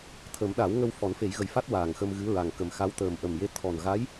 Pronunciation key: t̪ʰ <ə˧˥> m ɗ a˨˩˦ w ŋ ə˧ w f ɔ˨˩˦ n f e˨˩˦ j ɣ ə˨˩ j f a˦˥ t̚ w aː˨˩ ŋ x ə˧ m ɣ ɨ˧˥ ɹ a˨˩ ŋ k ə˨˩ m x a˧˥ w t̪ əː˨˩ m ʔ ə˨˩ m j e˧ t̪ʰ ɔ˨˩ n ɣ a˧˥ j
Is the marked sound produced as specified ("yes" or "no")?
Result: no